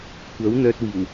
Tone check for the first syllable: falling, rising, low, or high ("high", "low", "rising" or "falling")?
rising